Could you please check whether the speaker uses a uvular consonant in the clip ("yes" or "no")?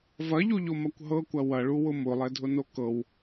no